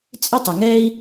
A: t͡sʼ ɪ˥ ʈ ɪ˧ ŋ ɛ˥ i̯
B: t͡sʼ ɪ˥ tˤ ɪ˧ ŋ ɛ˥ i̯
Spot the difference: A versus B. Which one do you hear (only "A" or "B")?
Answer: B